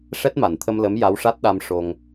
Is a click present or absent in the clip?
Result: absent